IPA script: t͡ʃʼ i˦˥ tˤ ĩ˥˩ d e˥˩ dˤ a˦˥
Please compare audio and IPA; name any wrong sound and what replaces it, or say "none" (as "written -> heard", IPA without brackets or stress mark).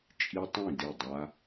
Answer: none